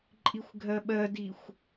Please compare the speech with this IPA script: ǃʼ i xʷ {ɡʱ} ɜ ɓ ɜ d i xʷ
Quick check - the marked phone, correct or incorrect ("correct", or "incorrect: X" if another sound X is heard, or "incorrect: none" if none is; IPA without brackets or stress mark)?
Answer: correct